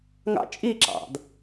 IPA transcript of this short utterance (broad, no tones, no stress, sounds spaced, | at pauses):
ŋ ɑ̰ t͡ʃʼ i ǁ ɑ̰ d